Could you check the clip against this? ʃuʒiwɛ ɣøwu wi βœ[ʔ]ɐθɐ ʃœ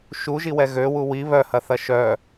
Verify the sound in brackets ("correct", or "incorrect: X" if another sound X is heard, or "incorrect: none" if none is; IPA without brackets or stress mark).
incorrect: h